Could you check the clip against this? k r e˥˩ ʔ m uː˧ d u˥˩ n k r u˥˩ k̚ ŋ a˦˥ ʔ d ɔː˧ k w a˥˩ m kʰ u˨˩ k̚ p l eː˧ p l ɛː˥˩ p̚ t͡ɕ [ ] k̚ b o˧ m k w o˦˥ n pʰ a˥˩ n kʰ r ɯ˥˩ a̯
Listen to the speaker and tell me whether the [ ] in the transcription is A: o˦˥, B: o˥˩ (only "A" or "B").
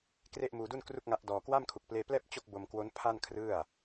B